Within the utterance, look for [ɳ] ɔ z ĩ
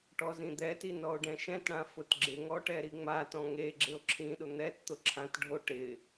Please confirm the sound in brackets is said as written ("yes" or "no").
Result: no